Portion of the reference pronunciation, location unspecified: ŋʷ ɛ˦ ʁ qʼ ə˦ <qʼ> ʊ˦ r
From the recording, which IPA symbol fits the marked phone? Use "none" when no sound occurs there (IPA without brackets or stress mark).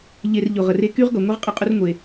qʼ